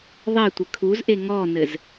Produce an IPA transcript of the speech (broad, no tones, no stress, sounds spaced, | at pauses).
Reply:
ðˤ ɛ tʷ ɘ kʰ u z ʔ e ŋ ɔ n ɘ z